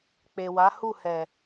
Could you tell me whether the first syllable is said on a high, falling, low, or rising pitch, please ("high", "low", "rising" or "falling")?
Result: low